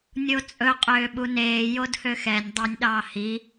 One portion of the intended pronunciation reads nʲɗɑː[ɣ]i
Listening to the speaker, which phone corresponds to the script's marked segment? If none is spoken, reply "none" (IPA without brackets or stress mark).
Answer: h